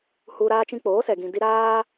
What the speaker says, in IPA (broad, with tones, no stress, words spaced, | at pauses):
hu˧ ɾaː˧t͡ʃĩ˧k͡poː˨˦sɛ˨ ɡĩ˨di˧ ɾaː˦